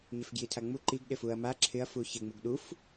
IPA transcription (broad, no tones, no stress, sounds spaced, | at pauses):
ɲ ɪ f ɡ j i tʰ a ŋ͡m u ǃ i ɡ ɗ ɪ f u ɐ̯ m a ǁʰ ɪ ɐ̯ f u ç ɪ ŋ͡m u ɡ ɗ u f